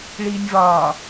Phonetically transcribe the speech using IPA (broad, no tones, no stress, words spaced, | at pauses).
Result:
ɭiːnʲvɒː